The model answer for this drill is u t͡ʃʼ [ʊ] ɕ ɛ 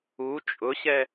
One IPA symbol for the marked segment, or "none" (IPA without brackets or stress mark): ʊ